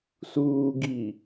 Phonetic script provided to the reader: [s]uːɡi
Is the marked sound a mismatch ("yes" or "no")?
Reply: no